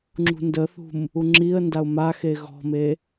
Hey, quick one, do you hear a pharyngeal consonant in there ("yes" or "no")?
no